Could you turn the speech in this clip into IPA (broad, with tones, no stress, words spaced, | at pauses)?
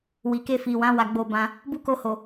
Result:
wi˨ke˧ fi˨wã˨˦ wa˧ɡ͡bo˧bã˧ | bu˦ko˧ho˨